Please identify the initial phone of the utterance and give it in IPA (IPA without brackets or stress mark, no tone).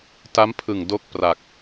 t